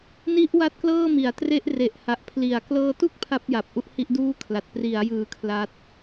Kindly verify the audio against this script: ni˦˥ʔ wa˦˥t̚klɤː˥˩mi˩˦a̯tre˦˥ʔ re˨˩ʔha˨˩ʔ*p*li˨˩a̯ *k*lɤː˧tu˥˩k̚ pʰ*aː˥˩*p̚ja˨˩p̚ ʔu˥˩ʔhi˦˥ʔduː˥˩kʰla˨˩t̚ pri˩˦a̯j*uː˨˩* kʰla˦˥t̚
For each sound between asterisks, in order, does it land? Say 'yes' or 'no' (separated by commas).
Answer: no, yes, no, no